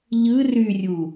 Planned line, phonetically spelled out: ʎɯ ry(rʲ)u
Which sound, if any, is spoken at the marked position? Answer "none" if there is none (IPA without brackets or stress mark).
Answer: rʲ